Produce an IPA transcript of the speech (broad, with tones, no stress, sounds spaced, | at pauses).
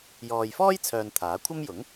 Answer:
j ɔː˨ j f ɔː˥ j t͡sʰ œː˨ n t̪ʰ aː˨˥ kʷʰ ɐ˥ m j ʊ˨˥ ŋ